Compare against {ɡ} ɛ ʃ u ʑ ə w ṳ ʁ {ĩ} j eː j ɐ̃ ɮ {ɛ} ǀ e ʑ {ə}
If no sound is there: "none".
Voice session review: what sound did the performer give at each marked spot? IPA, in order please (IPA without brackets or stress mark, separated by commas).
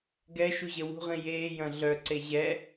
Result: ɡ, ĩ, œ, ɛ